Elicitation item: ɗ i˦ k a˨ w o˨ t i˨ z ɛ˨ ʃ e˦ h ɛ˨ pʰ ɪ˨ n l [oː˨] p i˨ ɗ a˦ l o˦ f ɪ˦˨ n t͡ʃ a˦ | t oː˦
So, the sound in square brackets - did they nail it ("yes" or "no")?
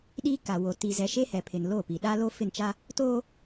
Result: no